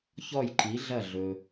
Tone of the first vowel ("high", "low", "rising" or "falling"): falling